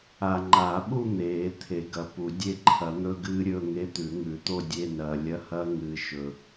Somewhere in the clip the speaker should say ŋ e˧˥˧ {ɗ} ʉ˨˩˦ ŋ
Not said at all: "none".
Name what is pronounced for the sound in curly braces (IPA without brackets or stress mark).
t̪